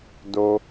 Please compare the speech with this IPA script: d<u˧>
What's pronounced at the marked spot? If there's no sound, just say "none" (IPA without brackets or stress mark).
o˧